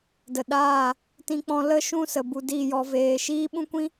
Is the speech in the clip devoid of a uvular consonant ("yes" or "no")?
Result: yes